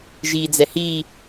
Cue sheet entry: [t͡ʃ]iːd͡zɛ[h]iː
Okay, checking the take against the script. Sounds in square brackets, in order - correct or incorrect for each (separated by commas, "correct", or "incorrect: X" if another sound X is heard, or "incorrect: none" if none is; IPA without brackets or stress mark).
incorrect: ʒ, correct